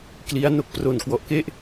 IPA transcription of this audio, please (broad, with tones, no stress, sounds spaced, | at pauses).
k l i˦˥ a̯ n o˦˥ k̚ p r o˨˩ n k w ɔ˨˩ ʔ k e˥˩ ʔ